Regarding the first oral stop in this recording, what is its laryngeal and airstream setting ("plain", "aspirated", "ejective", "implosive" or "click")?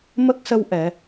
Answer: plain